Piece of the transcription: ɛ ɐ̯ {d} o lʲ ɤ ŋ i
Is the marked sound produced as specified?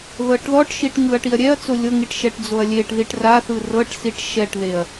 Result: no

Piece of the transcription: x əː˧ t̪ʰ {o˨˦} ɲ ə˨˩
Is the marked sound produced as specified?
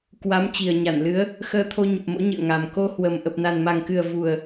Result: no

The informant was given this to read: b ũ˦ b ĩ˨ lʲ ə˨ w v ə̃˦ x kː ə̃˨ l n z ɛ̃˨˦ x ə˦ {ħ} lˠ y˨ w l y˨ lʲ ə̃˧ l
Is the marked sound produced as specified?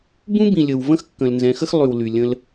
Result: no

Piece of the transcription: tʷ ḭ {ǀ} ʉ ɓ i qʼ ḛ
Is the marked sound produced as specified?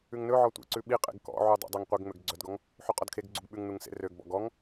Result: yes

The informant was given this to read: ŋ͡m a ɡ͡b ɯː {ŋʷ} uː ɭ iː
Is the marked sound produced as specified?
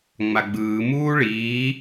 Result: no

